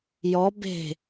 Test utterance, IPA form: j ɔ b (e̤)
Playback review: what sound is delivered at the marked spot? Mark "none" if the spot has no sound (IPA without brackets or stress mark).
e̤